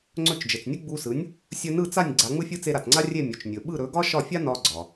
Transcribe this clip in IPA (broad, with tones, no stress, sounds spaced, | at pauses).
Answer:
ŋ͡ǀ ɵ˥˩ t͡ʃ d͡ʒ ɘ˩ t͡s nʲ ɯ˥ ɡ͡b u˧ s ɯ˩˥ nʲ | sʲ ɵ˧ n ɯ˥˩ t͡s a˥˩ nʲ ɡ͡ǀ a˩˥ ŋ͡m ɯ˥ fʲ ɯ˥ t͡s e˧ ɾ a˩ t͡s ŋ͡ǀ a˥ rʲ e˥˩ mʲ ɵ˩ t͡ʃ nʲ ɵ˩ ɓ ɯ˥˩ ɾ ɵ˩˥ ɡ ɒ˥ ʃ ɒ˥˩ fʲ a˥ n ɒ˧ ɡ͡ǀ ɒ˩